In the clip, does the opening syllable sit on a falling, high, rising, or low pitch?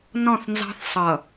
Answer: falling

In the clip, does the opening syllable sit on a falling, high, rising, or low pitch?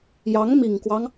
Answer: rising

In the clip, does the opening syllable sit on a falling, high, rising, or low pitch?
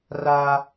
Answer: high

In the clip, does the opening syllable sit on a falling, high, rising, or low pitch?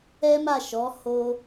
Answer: high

